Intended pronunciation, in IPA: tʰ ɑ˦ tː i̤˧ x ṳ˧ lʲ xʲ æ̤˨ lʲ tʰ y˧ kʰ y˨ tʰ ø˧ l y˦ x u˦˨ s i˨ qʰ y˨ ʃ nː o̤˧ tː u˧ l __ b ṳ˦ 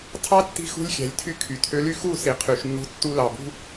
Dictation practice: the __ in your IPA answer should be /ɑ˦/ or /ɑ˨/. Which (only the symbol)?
ɑ˨